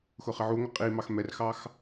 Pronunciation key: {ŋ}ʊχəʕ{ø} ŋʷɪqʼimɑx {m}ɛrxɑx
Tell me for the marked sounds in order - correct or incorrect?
incorrect, incorrect, correct

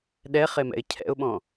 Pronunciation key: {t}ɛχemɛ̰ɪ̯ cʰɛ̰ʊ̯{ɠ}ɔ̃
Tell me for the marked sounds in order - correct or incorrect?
incorrect, incorrect

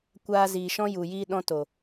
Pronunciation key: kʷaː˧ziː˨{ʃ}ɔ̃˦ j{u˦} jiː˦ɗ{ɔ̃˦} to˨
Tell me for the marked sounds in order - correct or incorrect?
correct, incorrect, correct

